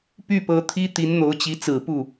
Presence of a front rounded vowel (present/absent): present